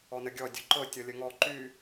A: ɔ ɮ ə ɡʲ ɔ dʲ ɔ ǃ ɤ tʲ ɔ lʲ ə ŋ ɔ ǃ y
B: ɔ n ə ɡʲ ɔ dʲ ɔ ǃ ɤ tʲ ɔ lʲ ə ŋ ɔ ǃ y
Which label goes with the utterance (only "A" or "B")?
B